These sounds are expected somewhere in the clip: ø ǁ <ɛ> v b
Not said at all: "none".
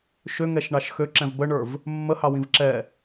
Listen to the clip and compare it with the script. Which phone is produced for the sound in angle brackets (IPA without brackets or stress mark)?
ɛ̃